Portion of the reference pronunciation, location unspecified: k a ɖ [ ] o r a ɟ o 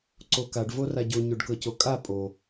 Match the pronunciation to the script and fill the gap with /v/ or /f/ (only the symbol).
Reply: v